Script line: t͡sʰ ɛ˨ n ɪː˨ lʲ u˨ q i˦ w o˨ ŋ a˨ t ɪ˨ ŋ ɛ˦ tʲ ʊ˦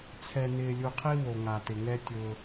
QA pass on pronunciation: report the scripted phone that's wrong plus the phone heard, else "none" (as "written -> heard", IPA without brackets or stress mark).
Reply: q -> qʰ